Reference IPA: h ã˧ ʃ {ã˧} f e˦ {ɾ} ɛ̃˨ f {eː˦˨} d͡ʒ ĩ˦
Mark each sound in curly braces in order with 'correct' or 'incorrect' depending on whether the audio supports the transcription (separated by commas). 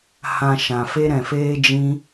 incorrect, correct, incorrect